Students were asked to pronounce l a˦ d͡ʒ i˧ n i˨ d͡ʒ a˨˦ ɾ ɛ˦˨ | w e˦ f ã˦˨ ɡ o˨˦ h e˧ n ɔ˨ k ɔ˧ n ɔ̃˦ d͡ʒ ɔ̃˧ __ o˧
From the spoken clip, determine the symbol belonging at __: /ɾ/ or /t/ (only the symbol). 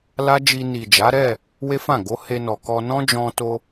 t